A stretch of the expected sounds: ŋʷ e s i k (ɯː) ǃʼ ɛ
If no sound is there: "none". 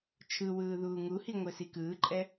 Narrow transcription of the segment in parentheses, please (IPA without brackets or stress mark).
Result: ɯː